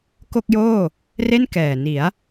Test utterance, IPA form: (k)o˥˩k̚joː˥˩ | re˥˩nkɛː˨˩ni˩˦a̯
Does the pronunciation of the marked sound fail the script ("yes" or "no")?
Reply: no